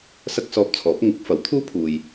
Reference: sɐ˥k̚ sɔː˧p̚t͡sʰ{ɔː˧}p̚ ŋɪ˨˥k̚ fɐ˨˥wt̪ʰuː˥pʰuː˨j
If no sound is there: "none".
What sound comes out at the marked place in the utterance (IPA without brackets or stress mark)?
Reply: ɔː˨˥